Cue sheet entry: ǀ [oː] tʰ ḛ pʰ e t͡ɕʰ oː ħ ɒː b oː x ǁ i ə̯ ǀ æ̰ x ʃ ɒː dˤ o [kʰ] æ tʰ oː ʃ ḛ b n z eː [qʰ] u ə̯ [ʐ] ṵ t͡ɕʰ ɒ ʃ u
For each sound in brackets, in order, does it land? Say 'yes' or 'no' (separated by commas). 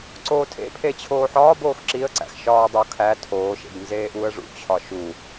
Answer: yes, yes, no, yes